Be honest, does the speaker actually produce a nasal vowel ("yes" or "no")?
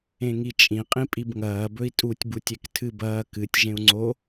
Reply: yes